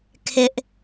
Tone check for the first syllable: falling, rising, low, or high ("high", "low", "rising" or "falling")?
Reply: high